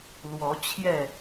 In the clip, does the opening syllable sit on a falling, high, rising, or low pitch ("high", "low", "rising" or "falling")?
rising